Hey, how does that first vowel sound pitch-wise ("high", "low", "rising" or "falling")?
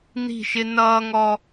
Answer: falling